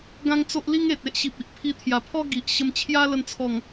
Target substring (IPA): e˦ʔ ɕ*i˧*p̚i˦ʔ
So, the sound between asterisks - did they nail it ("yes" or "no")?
no